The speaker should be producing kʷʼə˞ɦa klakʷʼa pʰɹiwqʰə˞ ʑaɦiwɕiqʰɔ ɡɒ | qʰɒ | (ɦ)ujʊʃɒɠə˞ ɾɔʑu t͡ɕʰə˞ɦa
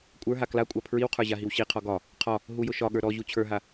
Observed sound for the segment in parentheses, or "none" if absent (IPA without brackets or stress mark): ɦ